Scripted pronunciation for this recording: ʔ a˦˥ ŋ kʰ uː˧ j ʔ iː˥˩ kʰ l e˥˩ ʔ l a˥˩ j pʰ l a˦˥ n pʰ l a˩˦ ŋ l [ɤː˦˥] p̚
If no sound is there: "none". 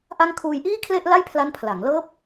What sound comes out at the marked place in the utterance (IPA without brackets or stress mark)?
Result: ɤː˦˥